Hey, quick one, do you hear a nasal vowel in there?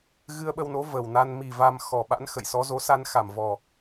no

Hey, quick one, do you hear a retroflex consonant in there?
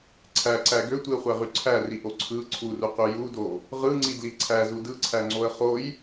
no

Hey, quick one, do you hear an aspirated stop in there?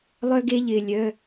no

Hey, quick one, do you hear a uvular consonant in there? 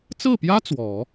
no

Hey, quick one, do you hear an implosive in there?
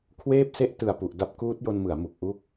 no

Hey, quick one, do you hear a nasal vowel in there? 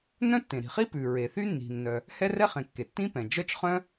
yes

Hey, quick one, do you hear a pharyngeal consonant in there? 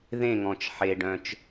yes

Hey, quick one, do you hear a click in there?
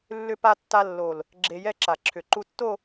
yes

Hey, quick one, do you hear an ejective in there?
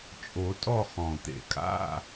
yes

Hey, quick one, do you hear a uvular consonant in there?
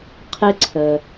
yes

